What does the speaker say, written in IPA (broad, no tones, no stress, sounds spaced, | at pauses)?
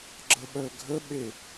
ɡ͡ǁ ə ɓ œ ɡʱ ə ɓ e